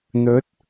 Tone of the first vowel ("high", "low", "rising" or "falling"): rising